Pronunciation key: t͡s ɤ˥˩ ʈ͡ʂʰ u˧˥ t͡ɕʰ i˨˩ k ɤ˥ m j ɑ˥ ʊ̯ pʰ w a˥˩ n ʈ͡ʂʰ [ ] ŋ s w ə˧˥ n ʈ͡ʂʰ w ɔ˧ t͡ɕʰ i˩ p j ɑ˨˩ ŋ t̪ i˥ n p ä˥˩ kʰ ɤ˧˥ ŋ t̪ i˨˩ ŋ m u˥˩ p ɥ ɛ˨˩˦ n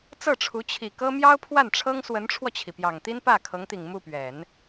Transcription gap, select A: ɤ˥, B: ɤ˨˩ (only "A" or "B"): A